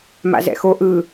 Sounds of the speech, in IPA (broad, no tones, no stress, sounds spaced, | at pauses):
m a̰ z ɛ̰ x o ʔ ɯ